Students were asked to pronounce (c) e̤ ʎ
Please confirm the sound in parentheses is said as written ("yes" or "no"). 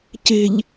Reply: yes